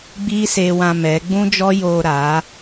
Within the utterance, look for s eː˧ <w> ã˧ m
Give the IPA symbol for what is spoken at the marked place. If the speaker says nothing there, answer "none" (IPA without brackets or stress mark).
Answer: w